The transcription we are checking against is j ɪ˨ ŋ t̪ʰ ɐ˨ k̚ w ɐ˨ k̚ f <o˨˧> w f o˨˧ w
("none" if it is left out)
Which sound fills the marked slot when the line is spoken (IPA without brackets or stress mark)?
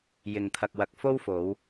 o˥